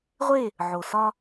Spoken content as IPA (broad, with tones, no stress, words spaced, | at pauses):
ʁʷe˦˨ | ʕo˨sɒ˦